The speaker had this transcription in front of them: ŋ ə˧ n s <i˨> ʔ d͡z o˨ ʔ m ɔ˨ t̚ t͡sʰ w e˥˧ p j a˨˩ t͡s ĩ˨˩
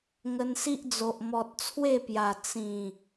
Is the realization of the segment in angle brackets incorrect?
yes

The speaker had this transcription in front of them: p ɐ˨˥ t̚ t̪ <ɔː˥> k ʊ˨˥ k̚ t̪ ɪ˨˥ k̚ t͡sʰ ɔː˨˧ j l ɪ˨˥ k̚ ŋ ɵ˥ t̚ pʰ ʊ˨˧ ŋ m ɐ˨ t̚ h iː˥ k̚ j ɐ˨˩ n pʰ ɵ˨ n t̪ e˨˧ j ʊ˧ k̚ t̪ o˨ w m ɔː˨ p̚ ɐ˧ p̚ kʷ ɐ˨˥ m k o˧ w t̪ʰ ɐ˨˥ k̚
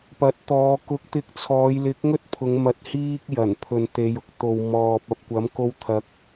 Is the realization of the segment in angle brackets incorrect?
yes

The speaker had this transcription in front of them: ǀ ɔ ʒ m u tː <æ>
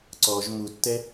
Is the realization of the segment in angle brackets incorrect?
yes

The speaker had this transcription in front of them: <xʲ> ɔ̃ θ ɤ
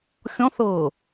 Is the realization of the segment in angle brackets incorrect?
no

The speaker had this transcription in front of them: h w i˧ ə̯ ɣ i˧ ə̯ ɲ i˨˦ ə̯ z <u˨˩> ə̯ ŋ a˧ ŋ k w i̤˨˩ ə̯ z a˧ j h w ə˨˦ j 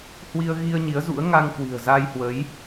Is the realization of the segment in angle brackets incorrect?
yes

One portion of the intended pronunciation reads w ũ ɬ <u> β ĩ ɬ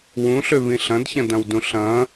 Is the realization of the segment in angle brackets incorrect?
yes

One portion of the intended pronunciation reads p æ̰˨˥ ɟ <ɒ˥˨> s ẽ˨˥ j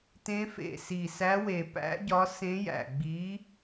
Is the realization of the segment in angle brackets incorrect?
yes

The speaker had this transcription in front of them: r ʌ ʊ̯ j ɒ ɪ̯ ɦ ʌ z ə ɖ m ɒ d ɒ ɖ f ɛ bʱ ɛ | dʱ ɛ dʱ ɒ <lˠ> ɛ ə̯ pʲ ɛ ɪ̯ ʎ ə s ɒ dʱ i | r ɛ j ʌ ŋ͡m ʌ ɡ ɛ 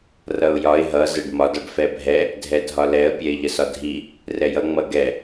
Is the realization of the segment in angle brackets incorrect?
yes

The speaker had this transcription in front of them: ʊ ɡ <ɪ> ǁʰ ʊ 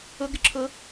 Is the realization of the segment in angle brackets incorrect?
no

